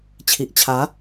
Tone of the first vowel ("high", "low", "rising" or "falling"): low